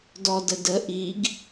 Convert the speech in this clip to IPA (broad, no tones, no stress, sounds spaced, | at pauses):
d ɔ d ə d ə ʔ i ɡ